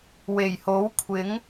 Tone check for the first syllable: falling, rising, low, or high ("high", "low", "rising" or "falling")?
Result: low